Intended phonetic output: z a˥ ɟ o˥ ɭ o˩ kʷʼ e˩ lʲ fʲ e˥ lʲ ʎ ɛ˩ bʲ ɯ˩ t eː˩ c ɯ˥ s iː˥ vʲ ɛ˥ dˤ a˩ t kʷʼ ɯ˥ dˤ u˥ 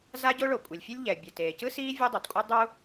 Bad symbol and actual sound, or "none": none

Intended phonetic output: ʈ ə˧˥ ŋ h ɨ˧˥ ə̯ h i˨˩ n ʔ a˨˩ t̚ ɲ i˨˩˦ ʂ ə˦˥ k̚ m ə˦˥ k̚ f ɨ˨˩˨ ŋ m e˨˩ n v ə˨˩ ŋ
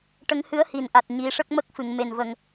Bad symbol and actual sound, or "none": none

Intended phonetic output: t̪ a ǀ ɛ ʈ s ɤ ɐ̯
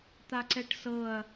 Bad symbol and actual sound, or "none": none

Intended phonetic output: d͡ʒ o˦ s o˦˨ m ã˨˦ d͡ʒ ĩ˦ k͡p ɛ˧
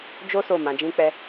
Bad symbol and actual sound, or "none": none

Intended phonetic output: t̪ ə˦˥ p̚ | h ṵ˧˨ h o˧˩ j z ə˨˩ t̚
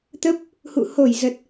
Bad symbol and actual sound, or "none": none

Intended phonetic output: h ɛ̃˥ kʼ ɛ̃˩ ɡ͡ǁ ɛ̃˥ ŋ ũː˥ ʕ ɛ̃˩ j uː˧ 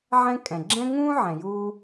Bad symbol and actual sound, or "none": h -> ʕ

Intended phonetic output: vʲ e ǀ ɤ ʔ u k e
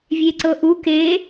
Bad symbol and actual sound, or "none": none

